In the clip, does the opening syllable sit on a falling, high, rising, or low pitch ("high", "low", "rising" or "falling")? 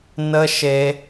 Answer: high